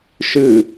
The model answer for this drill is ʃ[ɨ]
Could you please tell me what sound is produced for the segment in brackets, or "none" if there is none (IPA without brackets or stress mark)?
ɨ